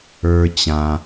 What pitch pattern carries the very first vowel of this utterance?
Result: high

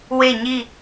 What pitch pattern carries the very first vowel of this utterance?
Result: falling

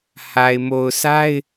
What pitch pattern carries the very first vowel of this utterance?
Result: low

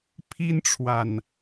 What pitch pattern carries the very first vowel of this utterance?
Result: high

